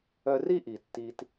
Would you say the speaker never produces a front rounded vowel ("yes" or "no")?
no